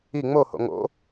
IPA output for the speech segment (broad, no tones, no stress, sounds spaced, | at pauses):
i ŋ͡m o h o̰ ŋ o̰